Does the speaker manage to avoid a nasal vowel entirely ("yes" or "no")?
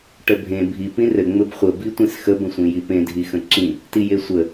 no